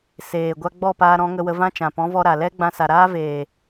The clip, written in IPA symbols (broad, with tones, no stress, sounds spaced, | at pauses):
s eː˨ ɡʷ a˧ ɡ͡b ɔ˦˨ p aː˧ ɾ ɔ̃˨˦ ŋ ə˧ w ə˧ v ã˦ t͡ʃ ã˨ p ɔ̃˨˦ v ɔ˧ ɾ a˨ l ɛ˦ ɡ͡b ã˧ s a˨ ɾ aː˦ v eː˨